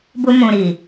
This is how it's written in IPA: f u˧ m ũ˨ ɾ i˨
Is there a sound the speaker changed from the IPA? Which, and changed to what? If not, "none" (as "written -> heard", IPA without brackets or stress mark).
f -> b